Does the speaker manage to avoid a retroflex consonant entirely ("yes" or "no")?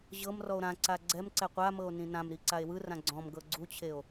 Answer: yes